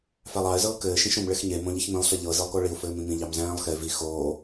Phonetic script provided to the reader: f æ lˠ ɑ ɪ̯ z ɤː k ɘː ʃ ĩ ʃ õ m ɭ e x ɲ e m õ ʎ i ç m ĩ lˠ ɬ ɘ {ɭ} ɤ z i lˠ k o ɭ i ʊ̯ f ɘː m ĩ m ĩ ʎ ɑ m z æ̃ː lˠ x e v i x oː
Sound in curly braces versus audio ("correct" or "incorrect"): incorrect